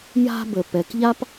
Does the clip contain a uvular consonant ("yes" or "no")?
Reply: no